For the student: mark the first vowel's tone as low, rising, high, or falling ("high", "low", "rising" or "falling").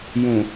low